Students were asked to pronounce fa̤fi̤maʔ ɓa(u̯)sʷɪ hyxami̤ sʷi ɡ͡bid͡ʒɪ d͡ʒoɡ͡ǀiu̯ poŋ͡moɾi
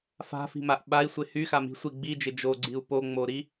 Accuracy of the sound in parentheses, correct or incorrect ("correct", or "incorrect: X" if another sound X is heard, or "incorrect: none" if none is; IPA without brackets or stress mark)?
incorrect: i̯